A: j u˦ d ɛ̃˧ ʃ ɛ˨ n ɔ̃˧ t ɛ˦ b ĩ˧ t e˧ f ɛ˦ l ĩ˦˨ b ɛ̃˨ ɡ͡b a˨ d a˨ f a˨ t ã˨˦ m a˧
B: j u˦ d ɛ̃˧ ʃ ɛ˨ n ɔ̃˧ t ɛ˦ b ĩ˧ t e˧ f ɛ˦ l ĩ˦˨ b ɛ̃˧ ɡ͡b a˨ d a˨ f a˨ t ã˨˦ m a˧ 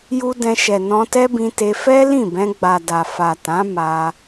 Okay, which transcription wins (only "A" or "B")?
B